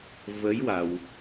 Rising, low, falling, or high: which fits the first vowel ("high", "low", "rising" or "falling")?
rising